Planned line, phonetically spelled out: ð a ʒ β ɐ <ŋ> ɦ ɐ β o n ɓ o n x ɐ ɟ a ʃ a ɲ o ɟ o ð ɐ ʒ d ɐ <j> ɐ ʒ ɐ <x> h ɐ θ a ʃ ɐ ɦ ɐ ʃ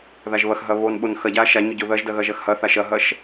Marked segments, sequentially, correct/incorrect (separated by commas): incorrect, incorrect, correct